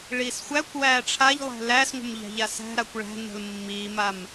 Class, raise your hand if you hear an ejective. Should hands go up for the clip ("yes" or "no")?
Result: no